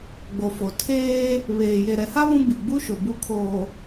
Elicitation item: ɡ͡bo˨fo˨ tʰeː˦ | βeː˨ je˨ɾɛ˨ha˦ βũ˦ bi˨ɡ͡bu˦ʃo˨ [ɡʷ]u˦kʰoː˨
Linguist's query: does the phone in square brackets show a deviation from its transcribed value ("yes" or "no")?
yes